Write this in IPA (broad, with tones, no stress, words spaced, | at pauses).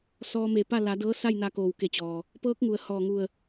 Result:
sɔː˧me˧˩pa˥˨ la˩˧dɤː˧˥ sa˥˨jna˧koː˩wke˧˩ t͡ɕɔː˩ | pɤː˧˥k̚ŋu˩ə̯ hɔː˧˩ŋu˧˩ə̯